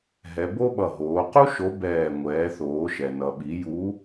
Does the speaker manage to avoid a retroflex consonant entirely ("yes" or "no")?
yes